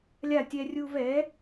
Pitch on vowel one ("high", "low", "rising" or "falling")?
falling